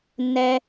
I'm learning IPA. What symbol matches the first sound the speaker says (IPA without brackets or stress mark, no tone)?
nː